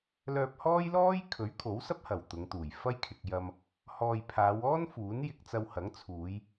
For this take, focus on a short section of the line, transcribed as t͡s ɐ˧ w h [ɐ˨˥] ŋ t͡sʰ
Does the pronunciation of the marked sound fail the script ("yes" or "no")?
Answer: no